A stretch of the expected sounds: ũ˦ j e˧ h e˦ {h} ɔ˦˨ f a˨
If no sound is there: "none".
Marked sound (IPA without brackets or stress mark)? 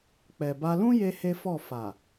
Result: f